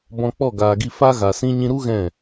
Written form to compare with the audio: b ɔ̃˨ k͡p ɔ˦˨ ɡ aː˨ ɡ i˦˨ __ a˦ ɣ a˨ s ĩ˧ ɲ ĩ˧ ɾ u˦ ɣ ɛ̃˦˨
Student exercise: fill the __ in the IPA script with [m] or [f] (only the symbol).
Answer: f